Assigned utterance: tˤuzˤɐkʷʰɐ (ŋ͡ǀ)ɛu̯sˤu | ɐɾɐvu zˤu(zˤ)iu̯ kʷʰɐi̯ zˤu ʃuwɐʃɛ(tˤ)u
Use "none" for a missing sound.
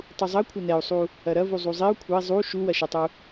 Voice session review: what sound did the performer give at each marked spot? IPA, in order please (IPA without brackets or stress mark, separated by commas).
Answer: n, zˤ, tˤ